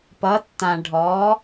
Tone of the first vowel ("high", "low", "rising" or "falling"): rising